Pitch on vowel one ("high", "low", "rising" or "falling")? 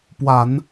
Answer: low